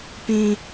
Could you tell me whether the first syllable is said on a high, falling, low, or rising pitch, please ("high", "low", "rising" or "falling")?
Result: high